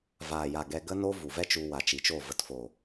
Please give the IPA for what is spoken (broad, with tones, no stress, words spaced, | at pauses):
vaː˨ja˨ ɡɛ˧ɡə˦no˦vu˨ vɛ˦t͡ʃu˧wa˨ t͡ʃi˨t͡ʃo˦˨ və˨tfo˨